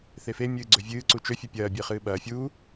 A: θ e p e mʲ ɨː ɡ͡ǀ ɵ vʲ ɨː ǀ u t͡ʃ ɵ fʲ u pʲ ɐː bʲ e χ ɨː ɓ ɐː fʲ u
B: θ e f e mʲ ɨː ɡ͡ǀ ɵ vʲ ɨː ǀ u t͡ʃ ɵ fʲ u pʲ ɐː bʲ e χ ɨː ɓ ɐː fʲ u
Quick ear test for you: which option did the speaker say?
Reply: B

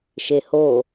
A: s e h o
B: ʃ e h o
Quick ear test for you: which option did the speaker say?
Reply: B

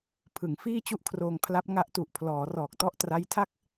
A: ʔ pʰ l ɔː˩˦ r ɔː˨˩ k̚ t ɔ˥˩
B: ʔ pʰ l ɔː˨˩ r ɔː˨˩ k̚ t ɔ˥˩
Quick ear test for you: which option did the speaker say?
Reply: A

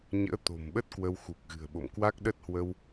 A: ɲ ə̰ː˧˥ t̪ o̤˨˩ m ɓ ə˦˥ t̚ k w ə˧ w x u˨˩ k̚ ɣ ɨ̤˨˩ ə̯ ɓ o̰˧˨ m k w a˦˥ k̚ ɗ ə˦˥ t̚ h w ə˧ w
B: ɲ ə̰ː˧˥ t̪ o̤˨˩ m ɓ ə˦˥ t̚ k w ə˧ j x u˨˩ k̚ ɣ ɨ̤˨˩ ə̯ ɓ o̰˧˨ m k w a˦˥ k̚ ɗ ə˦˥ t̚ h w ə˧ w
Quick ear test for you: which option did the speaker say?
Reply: A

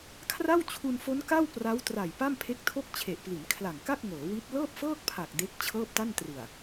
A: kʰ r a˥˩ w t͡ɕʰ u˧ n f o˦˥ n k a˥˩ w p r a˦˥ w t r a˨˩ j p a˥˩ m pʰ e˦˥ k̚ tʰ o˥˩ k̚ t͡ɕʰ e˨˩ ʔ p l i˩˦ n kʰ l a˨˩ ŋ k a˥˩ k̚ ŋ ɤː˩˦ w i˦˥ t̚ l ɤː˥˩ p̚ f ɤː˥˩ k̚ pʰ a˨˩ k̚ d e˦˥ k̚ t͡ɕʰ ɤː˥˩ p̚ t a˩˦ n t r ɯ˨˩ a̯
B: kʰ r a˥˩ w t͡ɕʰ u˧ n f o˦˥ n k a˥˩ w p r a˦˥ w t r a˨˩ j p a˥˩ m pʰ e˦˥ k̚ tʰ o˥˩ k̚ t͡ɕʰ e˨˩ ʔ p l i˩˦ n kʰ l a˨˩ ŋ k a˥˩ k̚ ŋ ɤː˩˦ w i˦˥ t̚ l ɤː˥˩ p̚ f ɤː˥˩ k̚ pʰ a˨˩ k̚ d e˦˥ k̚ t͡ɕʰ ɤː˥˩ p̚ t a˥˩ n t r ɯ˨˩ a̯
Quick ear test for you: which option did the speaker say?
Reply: B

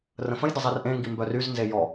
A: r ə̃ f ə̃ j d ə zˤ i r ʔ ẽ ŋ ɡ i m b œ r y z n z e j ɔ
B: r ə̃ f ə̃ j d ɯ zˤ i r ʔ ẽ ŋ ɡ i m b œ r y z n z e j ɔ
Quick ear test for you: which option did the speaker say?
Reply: A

